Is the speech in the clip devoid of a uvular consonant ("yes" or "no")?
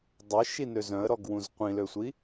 no